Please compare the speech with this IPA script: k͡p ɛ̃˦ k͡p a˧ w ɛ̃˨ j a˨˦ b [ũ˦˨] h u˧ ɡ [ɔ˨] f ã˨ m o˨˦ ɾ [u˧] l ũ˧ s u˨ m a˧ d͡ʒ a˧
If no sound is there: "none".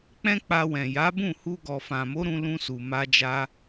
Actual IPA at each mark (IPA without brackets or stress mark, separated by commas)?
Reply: ũ˦˨, ɔ˨, ũ˧